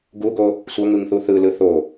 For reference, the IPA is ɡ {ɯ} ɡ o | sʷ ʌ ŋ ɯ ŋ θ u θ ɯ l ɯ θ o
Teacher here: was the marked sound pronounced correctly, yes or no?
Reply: no